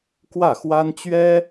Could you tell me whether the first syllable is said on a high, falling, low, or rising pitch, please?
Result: falling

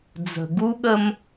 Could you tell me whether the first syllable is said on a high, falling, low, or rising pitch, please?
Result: low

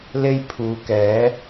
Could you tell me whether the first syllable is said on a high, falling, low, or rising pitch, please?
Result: high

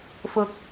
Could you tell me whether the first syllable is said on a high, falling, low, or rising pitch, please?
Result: rising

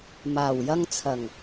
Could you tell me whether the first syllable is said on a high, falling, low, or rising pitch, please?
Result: low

